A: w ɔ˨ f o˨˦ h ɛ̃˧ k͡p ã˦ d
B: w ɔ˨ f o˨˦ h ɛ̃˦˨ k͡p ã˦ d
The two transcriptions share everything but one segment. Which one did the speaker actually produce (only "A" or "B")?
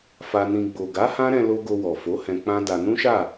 A